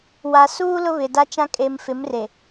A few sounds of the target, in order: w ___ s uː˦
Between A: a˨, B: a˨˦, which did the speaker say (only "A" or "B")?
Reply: A